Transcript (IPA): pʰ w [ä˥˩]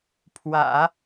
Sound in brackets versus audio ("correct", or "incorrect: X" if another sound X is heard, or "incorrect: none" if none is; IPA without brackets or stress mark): incorrect: ä̰˨˩˦